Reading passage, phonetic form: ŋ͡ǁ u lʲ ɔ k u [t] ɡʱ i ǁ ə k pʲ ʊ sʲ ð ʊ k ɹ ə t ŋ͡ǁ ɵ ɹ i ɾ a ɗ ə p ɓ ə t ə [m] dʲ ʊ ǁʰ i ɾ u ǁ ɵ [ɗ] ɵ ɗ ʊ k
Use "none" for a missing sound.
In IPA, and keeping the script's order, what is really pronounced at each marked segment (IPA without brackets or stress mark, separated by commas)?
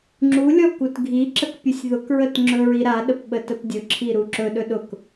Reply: t, p, ɗ